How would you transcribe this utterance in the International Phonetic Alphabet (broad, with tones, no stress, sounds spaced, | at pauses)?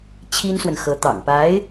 t͡ɕʰ i˥ n s w ə˨ n x ɤ˧˥ t̪ ɑ̰˨˩ ŋ p a˧˥ ɪ̯